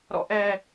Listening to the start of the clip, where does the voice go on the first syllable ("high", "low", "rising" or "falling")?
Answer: low